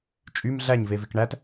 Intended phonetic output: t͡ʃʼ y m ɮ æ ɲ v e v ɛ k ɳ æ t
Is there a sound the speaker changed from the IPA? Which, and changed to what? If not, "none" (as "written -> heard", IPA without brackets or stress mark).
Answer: ɛ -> e